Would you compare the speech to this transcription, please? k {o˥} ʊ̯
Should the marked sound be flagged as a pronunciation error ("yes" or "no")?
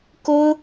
no